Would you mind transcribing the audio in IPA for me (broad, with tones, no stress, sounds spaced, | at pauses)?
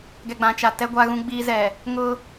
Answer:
ɡ ɛ˨ ɡ͡b ã˨ t͡ʃ a˨ t ɛ˦ ɡʷ a˦ ɣ ũ˦ ɡ͡b iː˦ z ɛ˨ | ŋ ʊ˦